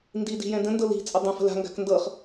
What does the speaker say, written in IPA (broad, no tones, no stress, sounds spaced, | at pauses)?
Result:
n d i d i̤ j ɛ̃ d ə̃ n d ɤ l i̤ t͡sʼ ə dˤ ə̃ f ə̤ l a̤ ŋ ɡ a̤ k n d ɤ χ